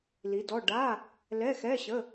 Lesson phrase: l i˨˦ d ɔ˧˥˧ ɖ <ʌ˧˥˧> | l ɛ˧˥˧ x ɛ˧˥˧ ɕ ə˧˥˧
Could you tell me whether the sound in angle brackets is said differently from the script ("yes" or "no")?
yes